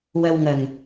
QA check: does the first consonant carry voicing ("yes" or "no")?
yes